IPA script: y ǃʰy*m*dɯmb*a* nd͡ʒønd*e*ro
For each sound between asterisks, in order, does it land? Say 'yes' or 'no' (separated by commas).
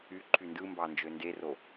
no, no, yes